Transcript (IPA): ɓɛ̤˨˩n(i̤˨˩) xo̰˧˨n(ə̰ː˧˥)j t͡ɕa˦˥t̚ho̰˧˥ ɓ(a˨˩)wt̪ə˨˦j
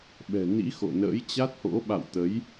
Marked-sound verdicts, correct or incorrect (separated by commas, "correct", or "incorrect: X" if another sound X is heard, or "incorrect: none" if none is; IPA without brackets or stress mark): incorrect: ḭ˧˥, correct, incorrect: a̰˧˨